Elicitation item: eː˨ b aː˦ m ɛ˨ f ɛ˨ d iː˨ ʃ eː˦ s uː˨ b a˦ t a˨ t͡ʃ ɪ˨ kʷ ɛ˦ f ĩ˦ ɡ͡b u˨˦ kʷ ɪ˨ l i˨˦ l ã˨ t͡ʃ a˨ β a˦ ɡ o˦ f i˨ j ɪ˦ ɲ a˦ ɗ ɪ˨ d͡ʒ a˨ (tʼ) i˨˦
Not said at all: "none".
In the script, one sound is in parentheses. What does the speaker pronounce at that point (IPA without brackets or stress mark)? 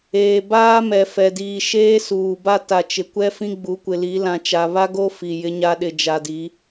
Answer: d